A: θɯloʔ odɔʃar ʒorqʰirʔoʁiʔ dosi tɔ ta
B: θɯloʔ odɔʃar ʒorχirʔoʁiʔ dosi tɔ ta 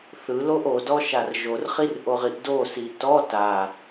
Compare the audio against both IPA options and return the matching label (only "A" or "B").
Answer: B